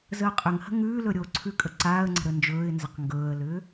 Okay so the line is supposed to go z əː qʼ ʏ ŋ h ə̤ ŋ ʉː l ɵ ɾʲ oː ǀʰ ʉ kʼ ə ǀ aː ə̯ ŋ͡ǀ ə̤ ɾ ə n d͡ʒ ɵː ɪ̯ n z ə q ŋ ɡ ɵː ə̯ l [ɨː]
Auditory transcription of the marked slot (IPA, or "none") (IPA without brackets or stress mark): ʏː